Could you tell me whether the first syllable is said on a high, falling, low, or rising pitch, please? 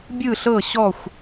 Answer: falling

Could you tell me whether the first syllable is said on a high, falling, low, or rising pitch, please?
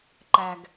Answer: low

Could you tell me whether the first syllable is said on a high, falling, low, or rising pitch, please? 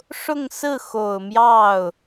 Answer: falling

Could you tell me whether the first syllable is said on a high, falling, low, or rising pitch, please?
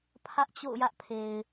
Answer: high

